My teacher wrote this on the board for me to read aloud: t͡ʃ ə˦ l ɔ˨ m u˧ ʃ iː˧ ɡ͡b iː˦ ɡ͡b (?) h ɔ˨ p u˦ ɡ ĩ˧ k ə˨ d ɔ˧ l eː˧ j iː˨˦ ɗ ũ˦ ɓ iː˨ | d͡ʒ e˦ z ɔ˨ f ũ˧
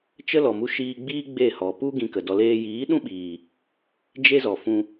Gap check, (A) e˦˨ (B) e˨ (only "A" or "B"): A